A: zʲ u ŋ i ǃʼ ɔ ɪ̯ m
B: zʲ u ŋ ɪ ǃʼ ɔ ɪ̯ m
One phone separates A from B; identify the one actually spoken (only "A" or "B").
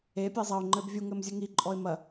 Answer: A